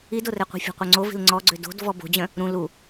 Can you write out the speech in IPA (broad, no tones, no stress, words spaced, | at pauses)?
idorɛqʷi̤ fʲo̤qʷœŋ͡ǀovi̤l ŋ͡ǀɔɡ͡ǀø do̤d vɔbo̤d͡ʑœ̃ | ɾũ lu